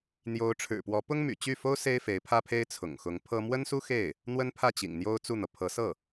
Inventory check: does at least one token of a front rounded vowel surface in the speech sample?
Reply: yes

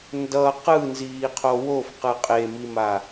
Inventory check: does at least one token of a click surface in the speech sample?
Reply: no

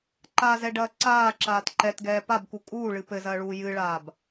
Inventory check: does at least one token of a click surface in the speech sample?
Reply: yes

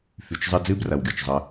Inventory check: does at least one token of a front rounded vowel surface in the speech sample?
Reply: yes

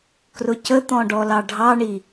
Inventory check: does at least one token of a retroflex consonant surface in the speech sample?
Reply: yes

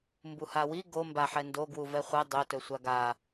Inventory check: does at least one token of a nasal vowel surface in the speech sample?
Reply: no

